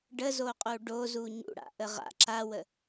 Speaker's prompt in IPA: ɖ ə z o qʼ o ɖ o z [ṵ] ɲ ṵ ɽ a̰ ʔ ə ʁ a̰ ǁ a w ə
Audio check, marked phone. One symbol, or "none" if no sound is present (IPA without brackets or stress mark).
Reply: u